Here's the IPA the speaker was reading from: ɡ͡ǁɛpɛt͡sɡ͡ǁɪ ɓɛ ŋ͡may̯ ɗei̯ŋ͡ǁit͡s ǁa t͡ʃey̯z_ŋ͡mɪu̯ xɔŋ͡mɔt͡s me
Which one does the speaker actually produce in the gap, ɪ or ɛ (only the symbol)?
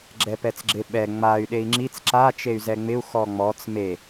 ɛ